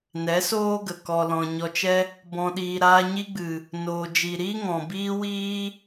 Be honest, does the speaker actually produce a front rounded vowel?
no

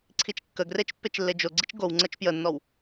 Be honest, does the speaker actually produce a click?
yes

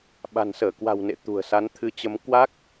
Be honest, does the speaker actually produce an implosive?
yes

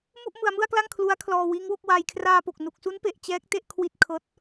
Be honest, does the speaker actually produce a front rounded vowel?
no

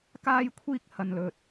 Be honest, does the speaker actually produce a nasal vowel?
no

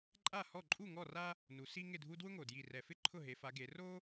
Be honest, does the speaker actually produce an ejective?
yes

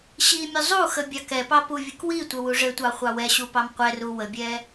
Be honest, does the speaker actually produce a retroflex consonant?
yes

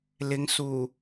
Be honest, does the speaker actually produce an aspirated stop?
no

